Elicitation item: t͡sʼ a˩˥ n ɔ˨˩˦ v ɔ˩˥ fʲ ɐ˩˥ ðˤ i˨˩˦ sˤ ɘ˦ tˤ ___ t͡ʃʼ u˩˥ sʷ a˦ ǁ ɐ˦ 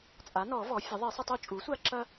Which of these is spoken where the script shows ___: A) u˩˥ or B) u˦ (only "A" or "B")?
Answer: B